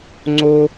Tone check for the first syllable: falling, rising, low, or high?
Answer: high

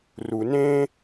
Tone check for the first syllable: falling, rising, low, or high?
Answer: low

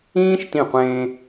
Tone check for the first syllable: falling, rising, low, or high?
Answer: high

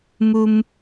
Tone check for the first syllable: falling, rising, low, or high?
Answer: high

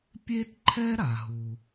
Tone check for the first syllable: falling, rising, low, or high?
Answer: high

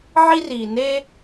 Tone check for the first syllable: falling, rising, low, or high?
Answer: high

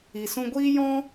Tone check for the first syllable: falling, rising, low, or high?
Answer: low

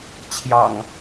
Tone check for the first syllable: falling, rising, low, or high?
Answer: low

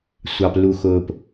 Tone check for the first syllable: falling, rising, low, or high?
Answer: low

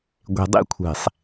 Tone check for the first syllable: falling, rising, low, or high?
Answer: low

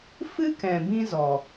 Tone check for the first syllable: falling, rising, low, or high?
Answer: high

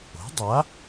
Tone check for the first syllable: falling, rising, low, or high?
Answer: rising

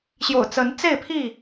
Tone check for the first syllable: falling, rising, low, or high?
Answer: low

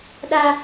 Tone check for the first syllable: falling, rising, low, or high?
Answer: high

